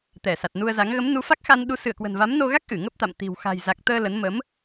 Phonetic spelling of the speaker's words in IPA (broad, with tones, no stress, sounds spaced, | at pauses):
t̪ ɛ˧˩ s a˨˩ t̚ n u˧ ə̯ z a˨˦ ŋ ɣ ə˨˦ m n u˨˦ f a˦˥ k̚ x a˧ n ɗ u˨˦ s ɨ˧˩ ə̯ k w ə̤˨˩ n v a˨˦ m n o˧ ɣ a˦˥ k̚ ʔ ɨ˧˩ ŋ ə˦˥ p̚ t̪ a̰˧˨ m t̪ i̤˨˩ w x a̤˨˩ j z a˨˩ k̚ t̪ əː˧ l ə˨˦ n m ə˨˦ m